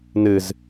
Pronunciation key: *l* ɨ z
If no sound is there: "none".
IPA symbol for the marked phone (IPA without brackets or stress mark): n